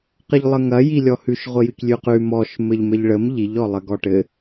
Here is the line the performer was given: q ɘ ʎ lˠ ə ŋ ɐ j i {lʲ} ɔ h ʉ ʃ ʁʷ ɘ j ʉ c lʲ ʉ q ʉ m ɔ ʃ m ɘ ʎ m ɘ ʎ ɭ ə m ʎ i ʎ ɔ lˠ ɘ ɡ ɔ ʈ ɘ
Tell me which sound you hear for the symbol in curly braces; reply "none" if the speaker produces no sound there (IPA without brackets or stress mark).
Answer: lʲ